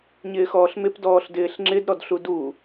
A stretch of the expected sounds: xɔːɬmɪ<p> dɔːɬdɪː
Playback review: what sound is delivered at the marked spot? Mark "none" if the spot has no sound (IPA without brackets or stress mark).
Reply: p